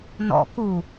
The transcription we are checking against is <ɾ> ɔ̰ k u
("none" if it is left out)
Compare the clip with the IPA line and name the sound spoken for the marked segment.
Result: n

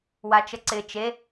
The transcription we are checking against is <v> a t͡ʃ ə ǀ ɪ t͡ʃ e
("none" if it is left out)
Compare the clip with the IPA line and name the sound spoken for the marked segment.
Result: w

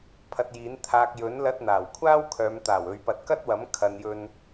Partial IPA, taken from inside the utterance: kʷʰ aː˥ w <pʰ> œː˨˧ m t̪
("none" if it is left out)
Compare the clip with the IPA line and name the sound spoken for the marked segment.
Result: kʰ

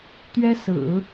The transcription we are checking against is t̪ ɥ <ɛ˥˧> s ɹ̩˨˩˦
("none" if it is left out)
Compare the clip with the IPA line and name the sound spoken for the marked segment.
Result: ɛ˥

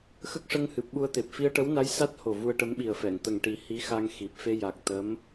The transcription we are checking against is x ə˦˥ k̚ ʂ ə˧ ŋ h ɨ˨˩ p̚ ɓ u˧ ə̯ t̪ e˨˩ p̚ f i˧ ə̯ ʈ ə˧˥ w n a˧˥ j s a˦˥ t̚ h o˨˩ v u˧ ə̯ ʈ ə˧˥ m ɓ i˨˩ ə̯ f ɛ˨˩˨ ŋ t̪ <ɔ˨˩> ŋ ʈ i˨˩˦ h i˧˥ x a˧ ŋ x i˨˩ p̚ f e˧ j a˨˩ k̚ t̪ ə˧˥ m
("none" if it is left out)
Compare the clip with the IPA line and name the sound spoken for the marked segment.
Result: ə˨˩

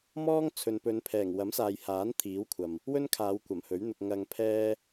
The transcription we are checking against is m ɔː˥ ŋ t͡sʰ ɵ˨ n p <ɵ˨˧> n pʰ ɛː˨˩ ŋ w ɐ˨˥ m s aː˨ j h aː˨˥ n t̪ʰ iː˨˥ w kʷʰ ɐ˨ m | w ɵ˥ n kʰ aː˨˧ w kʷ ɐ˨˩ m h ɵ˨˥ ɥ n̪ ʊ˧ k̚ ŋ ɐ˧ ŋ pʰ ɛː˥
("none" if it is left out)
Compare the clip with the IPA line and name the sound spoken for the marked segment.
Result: ɵ˨˧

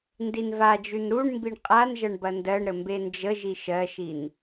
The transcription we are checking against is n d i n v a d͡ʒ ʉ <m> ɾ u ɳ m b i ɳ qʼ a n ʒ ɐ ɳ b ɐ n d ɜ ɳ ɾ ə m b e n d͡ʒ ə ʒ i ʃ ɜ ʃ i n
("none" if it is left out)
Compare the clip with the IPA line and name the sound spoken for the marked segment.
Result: n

